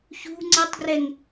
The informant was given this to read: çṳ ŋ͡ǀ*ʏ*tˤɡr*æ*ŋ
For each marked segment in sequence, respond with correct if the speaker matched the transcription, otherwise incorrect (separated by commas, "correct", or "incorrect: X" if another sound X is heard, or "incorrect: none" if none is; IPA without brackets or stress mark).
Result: incorrect: ɛ, incorrect: ɛ